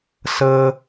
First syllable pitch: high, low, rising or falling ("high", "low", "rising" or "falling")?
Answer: high